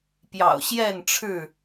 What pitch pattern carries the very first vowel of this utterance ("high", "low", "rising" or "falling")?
low